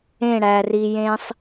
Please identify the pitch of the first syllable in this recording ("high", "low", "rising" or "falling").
falling